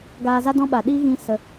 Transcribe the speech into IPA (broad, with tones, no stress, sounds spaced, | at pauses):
ɡ aː˧ z a˦ d ɔ̃˦ ɓ a˨ ɗ iː˦ ɣ ĩ˧ s ə˨